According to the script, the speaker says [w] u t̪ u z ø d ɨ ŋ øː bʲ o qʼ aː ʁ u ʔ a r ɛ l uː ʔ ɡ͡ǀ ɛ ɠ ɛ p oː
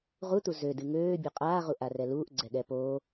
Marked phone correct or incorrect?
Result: incorrect